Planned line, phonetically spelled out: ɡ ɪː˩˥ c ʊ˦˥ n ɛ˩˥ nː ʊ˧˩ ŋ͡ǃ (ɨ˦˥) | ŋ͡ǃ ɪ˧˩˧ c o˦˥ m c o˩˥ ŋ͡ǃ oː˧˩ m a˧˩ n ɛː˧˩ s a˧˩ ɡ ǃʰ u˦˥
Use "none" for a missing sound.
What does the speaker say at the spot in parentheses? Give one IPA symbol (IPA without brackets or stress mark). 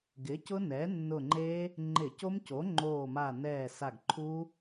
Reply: e˦˥